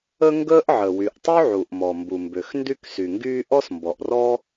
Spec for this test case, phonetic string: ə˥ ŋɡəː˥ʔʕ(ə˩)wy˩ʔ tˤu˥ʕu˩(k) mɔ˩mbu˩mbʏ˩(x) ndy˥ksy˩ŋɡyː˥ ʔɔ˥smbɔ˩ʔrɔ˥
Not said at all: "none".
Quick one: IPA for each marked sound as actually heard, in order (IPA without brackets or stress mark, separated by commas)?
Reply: ə˩, ʔ, x